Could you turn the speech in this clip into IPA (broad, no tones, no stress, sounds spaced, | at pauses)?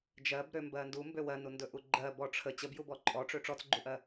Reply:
d͡ʒ ɜ b ɾ ø m b ɜ n d u m b ø w ɜ n u n d ɵ ʔ u ɡ͡ǃ ɜ b ɔ ʈ͡ʂʰ ə t͡ɕ ə b j u b ɔ ǃʼ ɔ ʈ͡ʂ ø ʈ͡ʂ ɔ t͡s ɡ͡ǃ u ʔ ɜ